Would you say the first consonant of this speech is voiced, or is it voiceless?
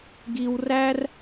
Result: voiced